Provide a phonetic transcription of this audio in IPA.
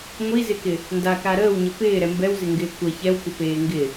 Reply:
ŋʷ i z ɪ k ɪ | n d a k a ɾ əː w ɲ ə p ɪː ɾ ɛ m b ɛ w z ɪ ŋ ɡ ɪː kʷ ə ç ɛ w kʷ ə p eː ŋ ɡ ɪ

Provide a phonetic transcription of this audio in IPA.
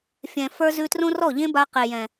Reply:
fʲ ɛ̃˨ f ə˞˧ z ʉ˧ t r õ˦ r ɔ˦˨ ʎ ẽ˦ b a˧ q e˨ j ɛ̃˨

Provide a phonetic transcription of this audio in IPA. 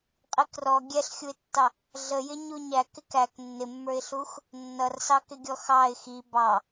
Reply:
qʼ i k r ɔ ɡʲ ɛ ɬ xʲ u ɪ̯ tː ɑ | ɮ ə j ɪ ɲ u ɲ æ k ɪ k æ k nː ɪ mː ə˞ ɪ̯ ɬ u x | nː ʌ r s ɑ k ɪ ɡʲ ɔ x ɑ ɪ̯ x i b ɑ

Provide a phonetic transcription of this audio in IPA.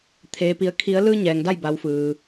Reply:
t̪ʰ eː˩ p i˩˧ ə̯ kʰ i˩˧ ə̯ l ɯː˧ ɲ ɛː˩ ŋ d a˥˨ j b a˩˧ w f ɯː˩

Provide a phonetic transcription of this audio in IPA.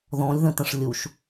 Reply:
ð ɔ̃ lʲ ð ə̃ t ə̃ ʂ lʲ u ʃ

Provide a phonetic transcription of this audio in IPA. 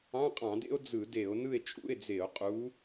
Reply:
ɑ̃˧˥˧ qʼ ɑ̃˧˩˧ d ḛ˥ o̯ d͡z ɯ˧˩˧ d e˧˩˧ o̯ n ɯ˥˨ e̯ t͡ʃʼ ṵ˧˥˧ e̯ d͡z e˧˩˧ o̯ qʼ u˨˥

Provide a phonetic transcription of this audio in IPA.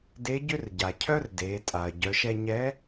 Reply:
d e˧˥ ɟ ʏ˥ r ɟ a˩ cʰ œ˥ r d e˩˧ tʼ a˩ ɐ̯ ɟ œ˩˧ ʃ ɛ˧ ɲ ɛ˧˥

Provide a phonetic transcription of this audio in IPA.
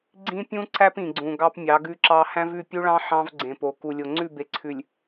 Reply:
ɡ͡ǀ ĩ˦ pʲ ũ˦ ǀ æ˦ p ĩ˨ ɡ͡ǀ ũ˨ ɡ ɑ˦ p mʲ ɑ˨˦ ɡ ʉ˦ ǁ ɑ˦ h æ̃˦ v ʉ˦˨ pʲ u˦ ɭ ɑ̃˦ ħ ɑ̃˦ v ɡ͡ǀ ẽ˨ p o˨ k u˨ lʲ o˨ ŋ͡ǀ ʉ˦˨ b e˨ ǀʰ ʉ˨ lʲ

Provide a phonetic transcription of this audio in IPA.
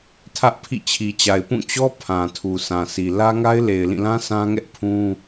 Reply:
tʰ ä˦ ʔ pʰ ḭ˦˨ t͡ɕʰ i˨ t͡ɕ a˨ ɪ̯ p ũ˦˨ t͡ɕ ɔ˦ pʰ ã˨ tʰ u˨ s ã˨ s i˨ l ä˦ ŋ a˦ ɪ̯ l e˨ ɪ̯ l ĩ˦˨ l ã˦ s ã˦ ŋ ɛ˦ ʔ pʰ ũ˦

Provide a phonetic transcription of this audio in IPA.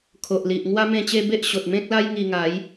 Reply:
kʰ o˨ ʔ l i˨ ʔ ŋ w a˦ m ẽ˥˧ t͡ɕ e˦ b e˦ ʔ ɕ o˨ t̚ m ẽ˦ k̚ l a˦ j ŋ i˧ ŋ a˨˦ j

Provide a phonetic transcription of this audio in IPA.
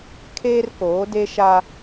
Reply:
kʰ eː˦ r k oː˨˦ d e˦ ʃ a˦

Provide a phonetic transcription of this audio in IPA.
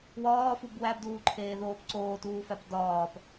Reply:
w ɒː f u b w æ b d uː ǃʰ eː ð oː p ǀ oː t uː f æ p d ɒː p

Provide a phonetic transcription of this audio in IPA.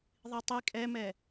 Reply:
ðˤ i tˤ i kʼ ɛ m ɛ

